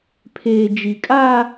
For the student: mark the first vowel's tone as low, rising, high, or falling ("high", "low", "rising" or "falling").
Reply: low